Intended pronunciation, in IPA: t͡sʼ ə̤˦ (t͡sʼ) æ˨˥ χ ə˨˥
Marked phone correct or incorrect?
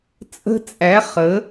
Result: correct